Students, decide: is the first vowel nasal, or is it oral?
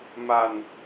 oral